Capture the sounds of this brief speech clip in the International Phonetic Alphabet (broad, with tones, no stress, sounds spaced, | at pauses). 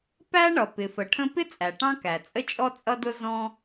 p æ˥ ɳ ʌ˩ p ɪ˩ f ə˩ ʈʰ ə̃˥ p ɪ˥ t͡sʼ æ˩ ʈ ɑ̃˥ k æ˩ t͡sʼ ə˥ t͡ʃʼ ɔ˥ t͡sʼ ʌ˥ d ʊ˥ z ɔ̃˥